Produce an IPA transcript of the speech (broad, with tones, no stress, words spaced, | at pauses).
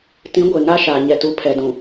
tĩ˨˦ɡʷe˨ ŋa˦ʃaː˨ ɲɛ˨tu˨ pʰɛ˨dũ˨